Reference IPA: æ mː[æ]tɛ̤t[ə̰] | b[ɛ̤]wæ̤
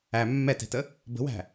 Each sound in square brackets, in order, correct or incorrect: incorrect, incorrect, incorrect

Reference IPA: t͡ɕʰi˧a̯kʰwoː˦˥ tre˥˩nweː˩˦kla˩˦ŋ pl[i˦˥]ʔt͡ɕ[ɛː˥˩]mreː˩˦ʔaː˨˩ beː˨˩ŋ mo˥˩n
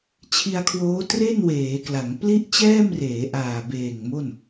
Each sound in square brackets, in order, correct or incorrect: incorrect, correct

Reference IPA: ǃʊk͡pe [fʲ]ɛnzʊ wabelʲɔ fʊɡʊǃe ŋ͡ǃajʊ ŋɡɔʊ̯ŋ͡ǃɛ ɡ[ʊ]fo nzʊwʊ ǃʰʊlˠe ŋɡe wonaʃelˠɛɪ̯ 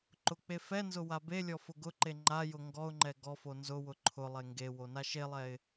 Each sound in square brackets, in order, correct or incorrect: incorrect, incorrect

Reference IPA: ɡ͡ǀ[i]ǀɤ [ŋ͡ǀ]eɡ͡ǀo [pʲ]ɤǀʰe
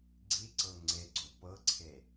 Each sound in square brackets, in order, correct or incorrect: correct, correct, incorrect

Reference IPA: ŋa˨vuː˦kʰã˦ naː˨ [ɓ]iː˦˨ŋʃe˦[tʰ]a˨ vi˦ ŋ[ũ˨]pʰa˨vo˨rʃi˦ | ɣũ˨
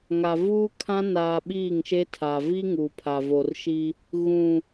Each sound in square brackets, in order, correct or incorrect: correct, correct, incorrect

